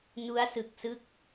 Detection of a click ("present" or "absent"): absent